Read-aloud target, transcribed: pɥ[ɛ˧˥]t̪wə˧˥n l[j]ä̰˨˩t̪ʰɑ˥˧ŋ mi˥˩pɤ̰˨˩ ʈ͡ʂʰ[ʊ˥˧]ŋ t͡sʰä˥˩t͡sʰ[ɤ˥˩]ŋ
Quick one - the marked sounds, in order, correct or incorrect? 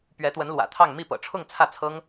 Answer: correct, incorrect: w, correct, incorrect: ɤ˥

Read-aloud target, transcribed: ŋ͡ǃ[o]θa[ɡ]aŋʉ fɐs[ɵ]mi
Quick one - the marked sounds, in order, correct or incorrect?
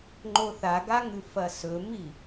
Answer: correct, correct, correct

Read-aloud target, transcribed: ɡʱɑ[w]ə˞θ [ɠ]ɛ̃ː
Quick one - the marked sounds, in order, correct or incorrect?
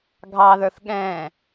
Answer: incorrect: ð, correct

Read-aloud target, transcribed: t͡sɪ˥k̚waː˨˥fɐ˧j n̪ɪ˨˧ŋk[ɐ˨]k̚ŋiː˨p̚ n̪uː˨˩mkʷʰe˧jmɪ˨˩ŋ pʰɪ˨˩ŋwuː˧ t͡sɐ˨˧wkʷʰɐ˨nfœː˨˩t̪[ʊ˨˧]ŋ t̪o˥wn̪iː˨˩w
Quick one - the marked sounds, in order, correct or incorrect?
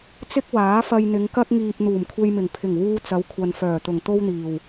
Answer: incorrect: ɐ˥, incorrect: ʊ˨˩

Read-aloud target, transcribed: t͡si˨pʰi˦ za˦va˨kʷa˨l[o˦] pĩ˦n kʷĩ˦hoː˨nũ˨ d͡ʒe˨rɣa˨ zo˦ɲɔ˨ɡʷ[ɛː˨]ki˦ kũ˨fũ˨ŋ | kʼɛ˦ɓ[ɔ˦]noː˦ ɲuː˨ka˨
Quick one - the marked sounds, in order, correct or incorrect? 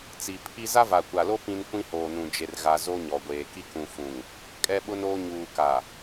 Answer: correct, incorrect: eː˨, incorrect: ʊ˦

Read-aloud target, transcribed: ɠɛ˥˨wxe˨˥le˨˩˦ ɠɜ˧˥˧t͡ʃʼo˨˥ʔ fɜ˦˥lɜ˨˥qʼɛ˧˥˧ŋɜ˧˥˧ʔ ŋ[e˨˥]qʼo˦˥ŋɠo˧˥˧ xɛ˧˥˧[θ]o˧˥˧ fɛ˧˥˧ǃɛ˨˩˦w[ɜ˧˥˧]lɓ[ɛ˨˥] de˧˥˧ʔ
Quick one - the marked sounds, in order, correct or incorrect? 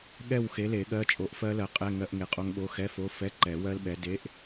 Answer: correct, incorrect: f, incorrect: ɜ˦˥, correct

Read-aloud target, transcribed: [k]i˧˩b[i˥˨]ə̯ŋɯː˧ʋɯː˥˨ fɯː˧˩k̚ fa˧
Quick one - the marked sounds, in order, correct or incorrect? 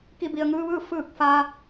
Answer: correct, incorrect: i˩

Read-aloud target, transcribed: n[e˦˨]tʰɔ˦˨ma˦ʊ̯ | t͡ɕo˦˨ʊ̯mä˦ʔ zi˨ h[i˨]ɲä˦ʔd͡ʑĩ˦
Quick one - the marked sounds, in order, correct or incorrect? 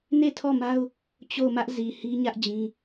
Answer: correct, incorrect: i˦

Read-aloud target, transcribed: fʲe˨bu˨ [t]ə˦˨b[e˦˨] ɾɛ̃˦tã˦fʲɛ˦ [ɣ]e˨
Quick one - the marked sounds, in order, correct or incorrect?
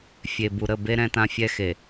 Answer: incorrect: ɾ, incorrect: e˦, incorrect: x

